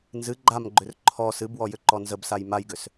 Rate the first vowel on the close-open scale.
close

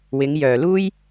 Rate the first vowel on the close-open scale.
close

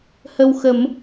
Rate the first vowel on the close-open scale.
mid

